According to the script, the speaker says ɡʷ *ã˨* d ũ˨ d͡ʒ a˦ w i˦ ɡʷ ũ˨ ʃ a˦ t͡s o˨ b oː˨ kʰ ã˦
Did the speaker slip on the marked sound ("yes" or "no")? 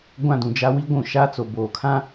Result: yes